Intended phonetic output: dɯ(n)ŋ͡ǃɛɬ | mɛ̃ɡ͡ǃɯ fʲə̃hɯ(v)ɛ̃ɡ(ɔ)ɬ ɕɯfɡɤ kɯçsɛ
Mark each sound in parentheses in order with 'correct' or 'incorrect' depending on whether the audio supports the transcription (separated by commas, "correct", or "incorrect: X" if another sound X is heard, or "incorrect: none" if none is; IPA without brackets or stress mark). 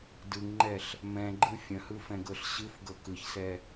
incorrect: ŋ, incorrect: f, incorrect: ɤ